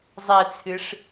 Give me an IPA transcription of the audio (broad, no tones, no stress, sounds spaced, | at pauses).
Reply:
zˤ ɛ t͡sʰ ɨ ʂ